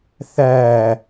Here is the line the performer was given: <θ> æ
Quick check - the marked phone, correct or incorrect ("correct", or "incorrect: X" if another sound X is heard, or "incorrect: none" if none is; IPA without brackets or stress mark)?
correct